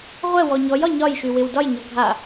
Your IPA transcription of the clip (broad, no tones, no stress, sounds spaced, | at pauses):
ʁʷ ɛ w ɔ ɲ ɔ j ɒ ɲ ɒ j ʃ y w ɪ w d ɒ j ɲ ɔ ɡʱ a